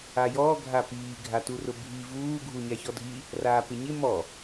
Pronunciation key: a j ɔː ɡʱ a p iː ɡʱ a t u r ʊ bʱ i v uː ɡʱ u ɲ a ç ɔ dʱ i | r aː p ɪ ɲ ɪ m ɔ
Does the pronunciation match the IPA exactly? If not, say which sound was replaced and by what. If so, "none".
none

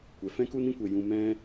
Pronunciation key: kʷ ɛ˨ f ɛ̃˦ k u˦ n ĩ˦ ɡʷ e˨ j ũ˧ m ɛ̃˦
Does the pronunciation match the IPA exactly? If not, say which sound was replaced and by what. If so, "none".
ɡʷ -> kʷ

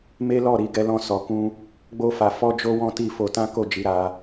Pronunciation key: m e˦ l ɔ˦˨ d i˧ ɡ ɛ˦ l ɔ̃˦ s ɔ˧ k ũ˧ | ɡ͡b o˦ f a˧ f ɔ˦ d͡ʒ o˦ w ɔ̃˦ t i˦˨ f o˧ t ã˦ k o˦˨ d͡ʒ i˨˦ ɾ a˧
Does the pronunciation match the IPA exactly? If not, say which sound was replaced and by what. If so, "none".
d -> ɾ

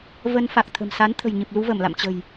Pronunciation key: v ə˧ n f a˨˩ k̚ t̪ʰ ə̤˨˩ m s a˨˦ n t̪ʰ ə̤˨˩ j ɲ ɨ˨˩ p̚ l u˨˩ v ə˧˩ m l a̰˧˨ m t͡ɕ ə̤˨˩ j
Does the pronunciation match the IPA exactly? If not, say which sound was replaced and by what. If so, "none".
u˨˩ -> u˧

